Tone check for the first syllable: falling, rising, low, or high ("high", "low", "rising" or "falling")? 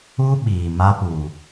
high